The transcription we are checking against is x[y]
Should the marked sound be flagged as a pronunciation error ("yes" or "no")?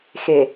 yes